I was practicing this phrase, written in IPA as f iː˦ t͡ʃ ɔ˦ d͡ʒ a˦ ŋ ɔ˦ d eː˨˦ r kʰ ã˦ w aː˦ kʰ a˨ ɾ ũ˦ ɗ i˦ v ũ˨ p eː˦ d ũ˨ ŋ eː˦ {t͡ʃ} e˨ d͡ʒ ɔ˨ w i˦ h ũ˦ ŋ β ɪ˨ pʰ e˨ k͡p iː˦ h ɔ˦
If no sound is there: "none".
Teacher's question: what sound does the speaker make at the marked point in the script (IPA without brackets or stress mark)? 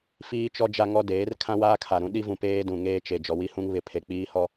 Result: t͡ʃ